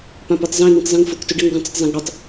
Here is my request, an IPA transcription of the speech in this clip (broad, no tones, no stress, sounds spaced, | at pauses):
p ã p ɔ tˤ z ɛ̃ n̪ ĩ tˤ z ĩ ŋ f ʊ k t ʊ ɖ ɛ ŋ ɡ ə̃ tˤ ə t zˤ ã ɡ ɽ ɔ tˤ